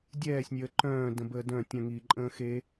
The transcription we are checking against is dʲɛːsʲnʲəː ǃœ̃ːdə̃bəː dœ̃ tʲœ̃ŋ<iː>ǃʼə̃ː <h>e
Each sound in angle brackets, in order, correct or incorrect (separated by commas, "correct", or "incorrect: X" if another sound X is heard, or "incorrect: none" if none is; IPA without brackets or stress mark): correct, incorrect: x